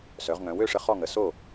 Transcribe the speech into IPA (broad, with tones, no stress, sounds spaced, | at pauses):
s œ˩˧ ʁ ŋ œ̃˩˧ w ø˥˩ ʂ ə˧ χ ɔ˥˩ ŋ ə˩˧ s o˥˩